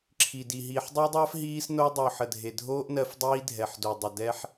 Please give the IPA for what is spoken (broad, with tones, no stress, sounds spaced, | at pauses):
ǁʰ i˨ d i˨ ɦ iː˨ ħ dˤ o˦ dˤ ɜː˦ f ɦ iː˦ s n o˦ dˤ o˨ ħ ə˨ dʱ e˨ dʱ oː˦ ʔ n ɜ˦ f dˤ iː˦ dʱ ɛ˨ ħ d o˨ dˤ ɐ˨ d ɛ˦ ħ